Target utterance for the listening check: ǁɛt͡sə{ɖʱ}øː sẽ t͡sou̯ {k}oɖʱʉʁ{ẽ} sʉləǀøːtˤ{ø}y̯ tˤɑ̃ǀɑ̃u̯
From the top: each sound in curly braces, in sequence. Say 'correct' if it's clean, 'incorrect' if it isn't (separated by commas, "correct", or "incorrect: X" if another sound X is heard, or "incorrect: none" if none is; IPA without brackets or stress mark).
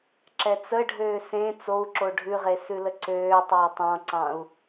correct, incorrect: ǁ, incorrect: e, correct